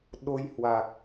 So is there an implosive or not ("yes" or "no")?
yes